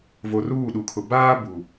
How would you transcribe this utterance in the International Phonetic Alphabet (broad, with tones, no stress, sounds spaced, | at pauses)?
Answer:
v o˨ r uː˦˨ ɗ u˨ kʰ ʊ˨ b aː˦ b u˨